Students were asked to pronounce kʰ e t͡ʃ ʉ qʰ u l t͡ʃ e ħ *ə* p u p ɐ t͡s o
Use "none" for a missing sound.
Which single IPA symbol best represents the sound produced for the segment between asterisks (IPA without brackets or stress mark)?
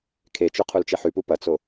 ʉ